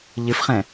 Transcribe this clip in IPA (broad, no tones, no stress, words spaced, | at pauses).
ʎɨfχɛ̃